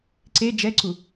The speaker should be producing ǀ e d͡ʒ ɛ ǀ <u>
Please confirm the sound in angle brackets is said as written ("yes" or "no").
yes